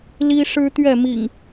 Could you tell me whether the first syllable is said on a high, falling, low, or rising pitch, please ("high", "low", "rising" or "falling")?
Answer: high